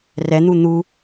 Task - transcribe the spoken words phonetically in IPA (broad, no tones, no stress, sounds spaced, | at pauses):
r ɛ n̪ u n̪ u